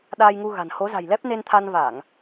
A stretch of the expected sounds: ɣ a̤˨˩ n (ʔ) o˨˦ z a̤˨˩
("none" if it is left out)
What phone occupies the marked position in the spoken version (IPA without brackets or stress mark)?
h